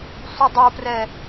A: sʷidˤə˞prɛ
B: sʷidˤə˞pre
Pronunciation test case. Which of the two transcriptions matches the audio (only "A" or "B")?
A